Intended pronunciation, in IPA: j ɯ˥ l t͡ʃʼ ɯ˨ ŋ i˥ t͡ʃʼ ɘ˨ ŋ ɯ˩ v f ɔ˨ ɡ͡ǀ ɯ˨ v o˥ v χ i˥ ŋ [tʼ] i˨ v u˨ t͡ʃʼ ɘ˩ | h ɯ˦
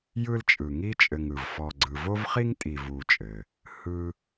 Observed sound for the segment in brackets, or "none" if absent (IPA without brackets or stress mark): tʼ